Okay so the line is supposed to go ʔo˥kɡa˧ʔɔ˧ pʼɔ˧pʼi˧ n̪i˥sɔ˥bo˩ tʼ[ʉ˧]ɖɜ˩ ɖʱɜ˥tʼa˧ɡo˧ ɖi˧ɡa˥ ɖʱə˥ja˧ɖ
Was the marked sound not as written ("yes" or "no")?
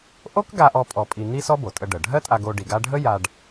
yes